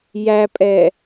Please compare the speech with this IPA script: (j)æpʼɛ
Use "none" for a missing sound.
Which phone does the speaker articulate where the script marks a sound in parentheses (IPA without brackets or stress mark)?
j